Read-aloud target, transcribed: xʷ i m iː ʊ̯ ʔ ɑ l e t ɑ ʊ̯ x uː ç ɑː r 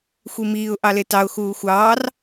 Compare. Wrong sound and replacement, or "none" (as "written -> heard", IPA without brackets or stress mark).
ç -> xʷ